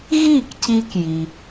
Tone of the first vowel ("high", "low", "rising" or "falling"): falling